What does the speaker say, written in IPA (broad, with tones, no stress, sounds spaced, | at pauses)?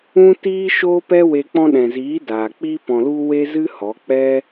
ũ˦ t iː˦ ʃ oː˦ p ɛ˦ w e˧ k͡p ɔ̃˧ ɗ ɛ̃˨ z iː˨˦ d aː˨ k͡p iː˦ p ɔ̃˧ l u˦ w e˦ z ɨ˦ h ɔ˨˦ k͡p ɛ˦